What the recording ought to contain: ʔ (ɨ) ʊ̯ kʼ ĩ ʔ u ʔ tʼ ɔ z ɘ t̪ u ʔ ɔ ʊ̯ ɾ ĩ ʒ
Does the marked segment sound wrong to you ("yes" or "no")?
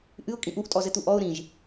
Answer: no